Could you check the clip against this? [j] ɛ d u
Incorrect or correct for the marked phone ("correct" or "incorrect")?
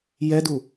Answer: correct